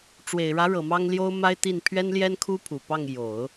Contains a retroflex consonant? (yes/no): yes